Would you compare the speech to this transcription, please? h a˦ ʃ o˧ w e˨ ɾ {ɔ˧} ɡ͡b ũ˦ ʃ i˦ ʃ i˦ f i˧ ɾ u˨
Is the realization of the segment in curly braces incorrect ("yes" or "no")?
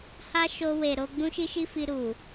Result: yes